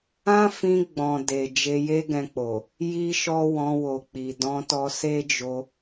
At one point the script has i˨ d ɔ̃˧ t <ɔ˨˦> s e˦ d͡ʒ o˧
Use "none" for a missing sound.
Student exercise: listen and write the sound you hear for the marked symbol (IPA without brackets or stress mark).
ɔ˧